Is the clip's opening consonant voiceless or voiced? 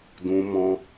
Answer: voiced